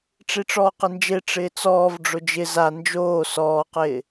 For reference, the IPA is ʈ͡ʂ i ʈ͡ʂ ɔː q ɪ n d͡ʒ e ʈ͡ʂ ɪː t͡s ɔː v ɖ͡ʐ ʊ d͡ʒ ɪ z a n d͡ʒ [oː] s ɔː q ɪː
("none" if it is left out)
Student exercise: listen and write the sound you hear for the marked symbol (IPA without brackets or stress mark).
oː